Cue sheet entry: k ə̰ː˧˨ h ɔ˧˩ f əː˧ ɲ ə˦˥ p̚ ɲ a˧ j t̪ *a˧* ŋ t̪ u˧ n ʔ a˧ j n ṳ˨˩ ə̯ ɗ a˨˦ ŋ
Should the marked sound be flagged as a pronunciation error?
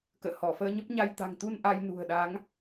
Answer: yes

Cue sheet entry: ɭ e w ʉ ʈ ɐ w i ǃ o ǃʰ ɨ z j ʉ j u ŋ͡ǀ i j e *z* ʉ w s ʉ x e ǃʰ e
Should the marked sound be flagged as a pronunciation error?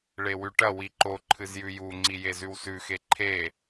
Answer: no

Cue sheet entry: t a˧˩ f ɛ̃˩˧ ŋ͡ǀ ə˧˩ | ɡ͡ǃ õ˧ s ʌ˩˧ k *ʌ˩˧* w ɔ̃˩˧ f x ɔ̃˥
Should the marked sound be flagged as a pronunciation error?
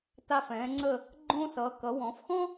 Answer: no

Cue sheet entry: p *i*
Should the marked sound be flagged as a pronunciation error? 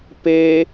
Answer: yes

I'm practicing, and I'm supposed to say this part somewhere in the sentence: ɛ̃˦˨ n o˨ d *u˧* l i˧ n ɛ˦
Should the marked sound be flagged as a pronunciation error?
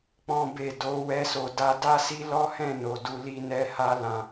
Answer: no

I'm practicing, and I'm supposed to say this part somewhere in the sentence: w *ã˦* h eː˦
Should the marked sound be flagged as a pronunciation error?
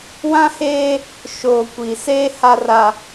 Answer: no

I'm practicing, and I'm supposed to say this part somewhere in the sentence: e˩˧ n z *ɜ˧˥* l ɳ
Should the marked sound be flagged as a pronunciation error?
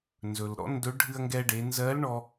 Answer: no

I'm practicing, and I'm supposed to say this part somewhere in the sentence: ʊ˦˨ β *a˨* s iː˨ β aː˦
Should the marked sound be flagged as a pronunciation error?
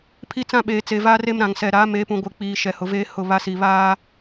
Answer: yes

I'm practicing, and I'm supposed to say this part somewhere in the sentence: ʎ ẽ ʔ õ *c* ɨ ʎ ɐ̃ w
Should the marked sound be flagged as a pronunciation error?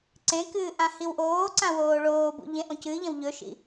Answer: no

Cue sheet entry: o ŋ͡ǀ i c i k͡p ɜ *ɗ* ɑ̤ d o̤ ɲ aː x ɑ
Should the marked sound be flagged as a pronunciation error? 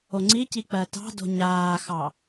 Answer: yes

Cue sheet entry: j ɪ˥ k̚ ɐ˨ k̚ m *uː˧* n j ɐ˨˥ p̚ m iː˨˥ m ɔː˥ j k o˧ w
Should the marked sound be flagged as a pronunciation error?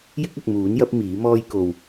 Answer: yes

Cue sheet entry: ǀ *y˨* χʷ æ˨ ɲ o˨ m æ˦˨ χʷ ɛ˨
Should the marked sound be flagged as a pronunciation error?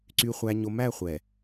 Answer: no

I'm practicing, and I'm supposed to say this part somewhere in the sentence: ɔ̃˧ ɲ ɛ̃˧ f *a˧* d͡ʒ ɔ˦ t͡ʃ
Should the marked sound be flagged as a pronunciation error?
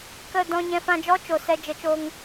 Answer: yes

